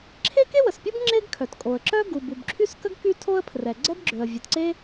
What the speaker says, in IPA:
ǁʰ e˥ k e˥ w ə˩ s pʲ u˥ b ŋ͡ǁ e˥ ɡ kʰ œ˩ t kʼ o˩ ə̯ ǁ œ˥ ɡ u˩ b u˩ b ǁʰ y˥ s k ə˥ ɡ k y˥ tʰ o˥ ə̯ pʰ r ɛ˩ ɡ͡ǀ ɛ˥ b ɡ͡ǁ ø˩ ə̯ vʲ e˩ t ǀ e˥

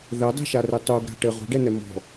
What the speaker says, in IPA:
ð ɛ dˤ e̤ ʃ a r e tˤ u ɡ ɾ a̤ ʈ ɘ ʁ ṳ ɖ ɛ n ɛ m ɔ̤

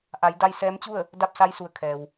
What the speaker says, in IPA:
ʔ a˩˧ j d a˧ j s ɛː˧˥ m t͡ɕ u˥˨ ə̯ | d a˥˨ p̚ s a˧˥ j s u˩˧ ə̯ kʰ ɛː˩ w

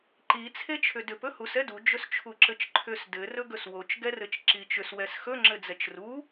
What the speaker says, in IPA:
ǃ i t͡sʰ e t͡ʃʰ ʏ d ʏ p ɵ h u s ɛ d u d͡ʒ ɵ s t͡ʃʰ u ǁ ɘ t͡ʃ ǃʰ ʏ s d ɘ r ɵ ɡ ɵ s w o t͡ʃ ɡ ɛ r ɘ t͡ʃ ǁ i t͡ʃ ʏ s w ɛ s x ɵ ŋ͡ǁ ɘ d͡z ɛ t͡ʃ r u

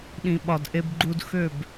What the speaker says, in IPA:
ɗ ĩ˨ ɓ ɒ˨ d ʔ e˧ b ɡ͡ǃ u˧ d x ø˦˨ b

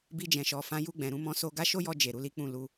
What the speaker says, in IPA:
b i˧ d͡ʒ ɛ̃˨ ʃ ɔ˨ f ã˨˦ j u˧ ɡ͡b ɛ̃˨ ɾ ũ˧ m ɔ̃˧ s o˦ ɡ a˦ ʃ o˦ j ɔ˧ d͡ʒ e˨ ɾ u˨˦ l i˦ k͡p ũ˦˨ l u˧

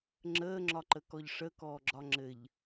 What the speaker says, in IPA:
ŋ͡ǁ əː ŋ͡ǁ ɒ ǃ ə k ɔ ʎ ʂ ə k ɔː ɡ͡ǁ ɒ ŋ͡ǁ ɘ ʎ

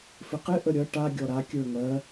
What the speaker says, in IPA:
f ɪ q ɪ ʔ ə ɾʲ ʌ ʈ a ɡʲ ɔ ɾ a kʲ ə˞ ŋ ɜ

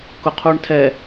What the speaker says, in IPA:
k ʊ qʰ u ɳ tʰ ɛ

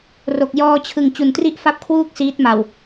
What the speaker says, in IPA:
r o˨˩ k̚ j ɔː˧ t͡ɕʰ ɯ˨˩ ŋ t͡ɕ u˩˦ n t r i˥˩ ʔ f a˥˩ p̚ kʰ w uː˥˩ k̚ s iː˦˥ t̚ m a˨˩ w

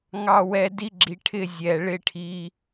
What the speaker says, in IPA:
ŋ ɑ˧ w ɛ˧ d i˦ ɡ͡ǁ i˧ ʈʰ ɪ˧ zʲ ɛ˨ ɭ ɪ˦ ʈʰ i˦

